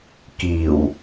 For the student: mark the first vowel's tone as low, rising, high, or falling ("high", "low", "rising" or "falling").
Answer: low